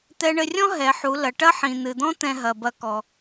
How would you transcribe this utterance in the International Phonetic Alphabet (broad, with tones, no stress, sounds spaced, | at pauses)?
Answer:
t̪ ɛ˧ ɳ ɘ˧ rʲ ɔ̃˥ ɦ ɛ˩˧ ħ u˩˧ l ɐ˩˧ ʈ ɐ˥ ħ ĩ˩ n̪ ɨ˩ d̪ ɔ̃˥ t̪ ɛ̃˧ ɦ ɐ˩ b ɐ˧ k ɔ˩